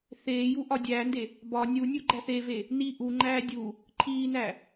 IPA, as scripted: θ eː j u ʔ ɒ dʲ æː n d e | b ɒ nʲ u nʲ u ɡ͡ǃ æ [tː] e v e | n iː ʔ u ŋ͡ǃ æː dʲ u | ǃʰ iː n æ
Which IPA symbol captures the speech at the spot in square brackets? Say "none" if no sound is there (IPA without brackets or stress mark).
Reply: θ